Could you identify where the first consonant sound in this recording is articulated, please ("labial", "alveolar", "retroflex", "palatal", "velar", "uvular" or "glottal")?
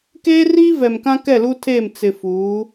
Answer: velar